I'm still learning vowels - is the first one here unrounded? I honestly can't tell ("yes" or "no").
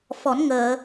no